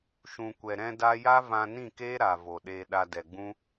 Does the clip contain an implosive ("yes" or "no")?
yes